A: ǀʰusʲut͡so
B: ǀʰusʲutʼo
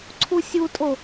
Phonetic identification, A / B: B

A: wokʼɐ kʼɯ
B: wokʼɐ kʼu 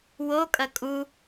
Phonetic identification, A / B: B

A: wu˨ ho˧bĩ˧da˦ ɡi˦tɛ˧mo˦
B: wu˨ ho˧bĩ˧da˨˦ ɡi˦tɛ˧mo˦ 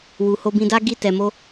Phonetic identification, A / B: A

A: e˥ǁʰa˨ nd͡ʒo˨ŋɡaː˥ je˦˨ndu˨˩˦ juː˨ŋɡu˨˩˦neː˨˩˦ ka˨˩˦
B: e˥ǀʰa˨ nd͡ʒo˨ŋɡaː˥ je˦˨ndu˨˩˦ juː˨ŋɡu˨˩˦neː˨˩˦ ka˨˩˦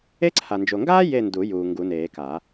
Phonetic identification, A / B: B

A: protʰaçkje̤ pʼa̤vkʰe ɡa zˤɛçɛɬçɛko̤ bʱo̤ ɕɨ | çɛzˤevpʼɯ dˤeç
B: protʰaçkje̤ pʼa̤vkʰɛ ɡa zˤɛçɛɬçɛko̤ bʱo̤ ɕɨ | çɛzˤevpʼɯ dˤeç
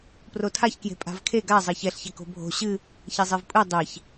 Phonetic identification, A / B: A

